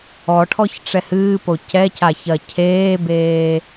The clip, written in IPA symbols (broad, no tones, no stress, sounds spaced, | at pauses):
ɔ ʈʰ ɔ ç ʈ͡ʂ ɛ h ɨː p o c ɛ c a ç ɐ cʰ eː b eː